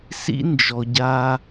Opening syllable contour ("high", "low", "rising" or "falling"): high